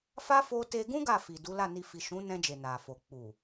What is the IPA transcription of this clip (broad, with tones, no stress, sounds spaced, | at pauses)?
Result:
f a˦ f o˦ t e˧ ɡ ũ˦ ɡ a˦˨ f i˨ d u˨˦ l a˦˨ n i˧ f i˨ ʃ ũ˨˦ n ɛ̃˧ d͡ʒ e˨ n a˨ f o˨ k͡p u˨